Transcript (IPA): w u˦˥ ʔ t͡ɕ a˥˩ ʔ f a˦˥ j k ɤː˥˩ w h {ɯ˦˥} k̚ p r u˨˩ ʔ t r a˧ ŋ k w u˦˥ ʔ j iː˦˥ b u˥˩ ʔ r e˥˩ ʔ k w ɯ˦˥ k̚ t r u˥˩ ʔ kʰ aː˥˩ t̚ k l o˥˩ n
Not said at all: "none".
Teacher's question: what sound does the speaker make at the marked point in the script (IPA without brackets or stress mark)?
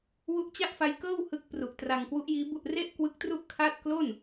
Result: ɯ˦˥